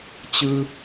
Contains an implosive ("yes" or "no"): no